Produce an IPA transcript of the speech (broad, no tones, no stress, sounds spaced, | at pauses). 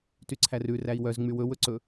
t y ǀʰ æ r ʉ r æ i̯ w œ z ŋ͡m y w ɵ w ɵ ǀ ɵ